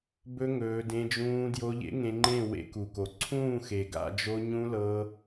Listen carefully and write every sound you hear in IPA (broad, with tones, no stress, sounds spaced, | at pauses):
b ɵ˦ ŋ ɵː˧ d ẽ˧ d͡ʒ ũː˧ d j o˧ ʎ ḛ˦ ŋ ẽ˧ ŋ͡ǃ ẽ˦˨ w ḛ˧ k u˨ k o˨ ǀʰ ũː˦˨ x e˨ ɡ a̰˦˨ d͡ʒ o˧ ɲ ũ˧ l ɤː˧